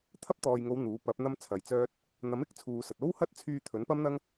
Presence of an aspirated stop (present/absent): present